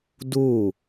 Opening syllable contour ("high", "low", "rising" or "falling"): falling